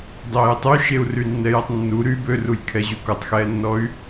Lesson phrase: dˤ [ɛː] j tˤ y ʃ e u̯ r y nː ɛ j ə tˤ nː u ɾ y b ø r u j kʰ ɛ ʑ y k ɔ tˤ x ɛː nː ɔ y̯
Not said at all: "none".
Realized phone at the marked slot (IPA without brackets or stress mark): eː